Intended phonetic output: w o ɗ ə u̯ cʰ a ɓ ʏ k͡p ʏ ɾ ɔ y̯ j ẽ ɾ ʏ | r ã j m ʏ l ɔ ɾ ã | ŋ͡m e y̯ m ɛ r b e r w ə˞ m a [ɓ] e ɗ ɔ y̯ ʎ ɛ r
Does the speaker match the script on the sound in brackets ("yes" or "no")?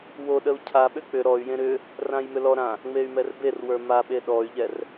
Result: yes